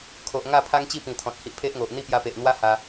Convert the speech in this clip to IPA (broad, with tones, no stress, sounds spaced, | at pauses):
kʰ o˨ ʔ ŋ a˥˧ pʰ a˦ ŋ t͡ɕ i˥˧ p ĩ˨˩ t̪ʰ ɔ̃˨ t̚ h i˦ ʔ pʰ e˦ ʔ ŋ o˨ ʔ n̪ i˥˧ p j a˧ p e˨ ʔ n̪ w a˦ h a˧